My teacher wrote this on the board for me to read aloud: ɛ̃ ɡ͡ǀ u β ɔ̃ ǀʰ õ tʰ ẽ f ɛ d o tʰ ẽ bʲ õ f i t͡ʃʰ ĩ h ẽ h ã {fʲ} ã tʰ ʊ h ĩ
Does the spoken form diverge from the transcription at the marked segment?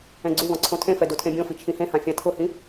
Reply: no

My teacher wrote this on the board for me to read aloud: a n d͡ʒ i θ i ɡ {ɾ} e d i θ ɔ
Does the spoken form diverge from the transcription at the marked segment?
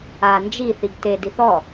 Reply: yes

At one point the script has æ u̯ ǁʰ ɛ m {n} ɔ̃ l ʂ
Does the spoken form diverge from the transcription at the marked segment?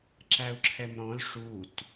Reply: yes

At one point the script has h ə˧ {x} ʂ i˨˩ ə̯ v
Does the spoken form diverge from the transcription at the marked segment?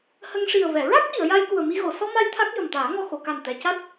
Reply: yes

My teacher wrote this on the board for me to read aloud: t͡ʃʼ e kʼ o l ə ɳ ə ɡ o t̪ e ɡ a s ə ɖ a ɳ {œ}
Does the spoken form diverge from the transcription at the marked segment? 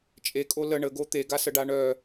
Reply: no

